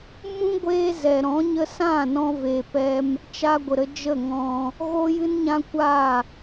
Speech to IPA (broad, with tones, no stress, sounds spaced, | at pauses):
m ũ˦ ɡʷ eː˧ z ɛ˨ ɾ ɔ̃˨˦ ɲ ə˧ s ã˦˨ n ɔ̃˦ v eː˧ p ɛ˦ m | t͡ʃ a˧ ɡʷ ə˨ ɾ ə˧ d͡ʒ ə˦˨ ŋ ɔ̃˧ | ɣ o˦ j ɨ˦ n ɲ ã˦ kʷ a˦˨